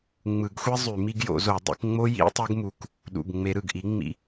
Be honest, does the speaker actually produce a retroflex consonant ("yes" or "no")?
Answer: no